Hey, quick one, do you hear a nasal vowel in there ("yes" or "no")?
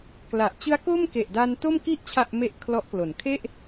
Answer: no